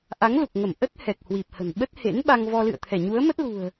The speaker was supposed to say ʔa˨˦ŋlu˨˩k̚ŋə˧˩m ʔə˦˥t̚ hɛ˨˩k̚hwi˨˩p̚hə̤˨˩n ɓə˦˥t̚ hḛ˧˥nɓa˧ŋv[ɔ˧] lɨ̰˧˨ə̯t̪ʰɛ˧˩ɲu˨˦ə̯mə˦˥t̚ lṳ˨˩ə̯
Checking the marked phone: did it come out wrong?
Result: no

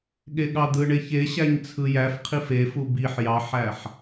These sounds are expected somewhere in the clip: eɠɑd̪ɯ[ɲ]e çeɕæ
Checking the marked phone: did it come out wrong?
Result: yes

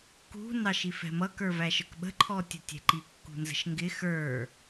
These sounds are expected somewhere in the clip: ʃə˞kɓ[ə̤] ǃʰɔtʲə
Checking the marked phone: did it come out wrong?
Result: no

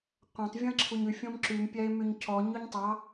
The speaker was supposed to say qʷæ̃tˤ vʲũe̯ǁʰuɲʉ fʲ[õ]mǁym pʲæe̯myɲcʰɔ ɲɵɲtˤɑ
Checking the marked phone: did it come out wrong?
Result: no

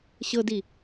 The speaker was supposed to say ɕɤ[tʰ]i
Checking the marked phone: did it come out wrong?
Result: yes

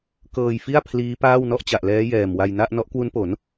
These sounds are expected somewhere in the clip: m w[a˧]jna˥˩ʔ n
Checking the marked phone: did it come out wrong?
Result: no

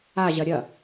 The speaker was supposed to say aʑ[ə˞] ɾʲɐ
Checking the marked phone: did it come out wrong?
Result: yes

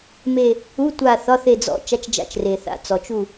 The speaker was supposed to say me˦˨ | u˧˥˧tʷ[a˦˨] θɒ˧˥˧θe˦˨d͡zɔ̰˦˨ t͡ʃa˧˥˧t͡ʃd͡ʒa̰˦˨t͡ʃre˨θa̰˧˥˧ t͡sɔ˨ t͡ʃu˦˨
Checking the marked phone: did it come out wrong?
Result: no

